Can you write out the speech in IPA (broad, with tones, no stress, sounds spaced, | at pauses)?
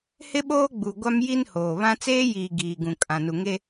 h ɪ˦ ɓ oː˦ ɡ͡b u˨ ɡʷ a˦ m j i˦ n h oː˨ β ã˦ t͡s eː˦ j iː˨ ɡ iː˨ ɡ ũ˨ kʼ ã˨ n u˨ ŋ e˦